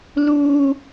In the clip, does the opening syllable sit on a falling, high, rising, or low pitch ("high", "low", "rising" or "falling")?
high